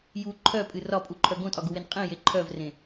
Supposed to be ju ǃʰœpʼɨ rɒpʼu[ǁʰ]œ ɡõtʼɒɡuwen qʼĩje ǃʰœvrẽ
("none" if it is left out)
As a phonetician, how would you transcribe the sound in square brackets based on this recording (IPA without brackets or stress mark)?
ǃʰ